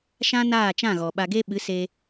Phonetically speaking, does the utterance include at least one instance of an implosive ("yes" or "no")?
yes